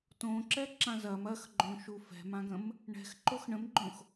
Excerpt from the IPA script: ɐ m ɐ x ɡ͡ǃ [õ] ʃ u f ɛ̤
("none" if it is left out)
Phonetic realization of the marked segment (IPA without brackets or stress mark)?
õ